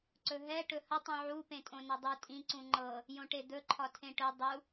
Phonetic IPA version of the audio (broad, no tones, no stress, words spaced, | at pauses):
ǀɵɦɛ ʈɵhə tˤũʕu pẽtʼõnɤdˤu tʼĩ ǀũŋ͡ǃɤ | jõʈed̪ɵ ǃʰɒtʰẽʈɵ dˤu